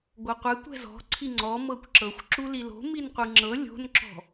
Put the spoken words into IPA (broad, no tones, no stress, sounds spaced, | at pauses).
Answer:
ɡʷ ɤ qʷ ɛ tʷ ɛ̤ z ɔ̤ ǀʰ i ŋ͡ǀ ɔ m ɤ kʷ ǁ ɤ xʷ ǁ u l i l o̤ m i n qʷ ɯ ŋ͡ǁ ɤ lʲ o̤ n ǁ ɔ̤